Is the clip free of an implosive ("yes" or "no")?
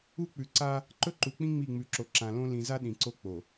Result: no